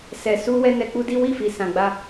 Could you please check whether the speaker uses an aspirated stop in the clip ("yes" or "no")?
no